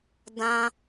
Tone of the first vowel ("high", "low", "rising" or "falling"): high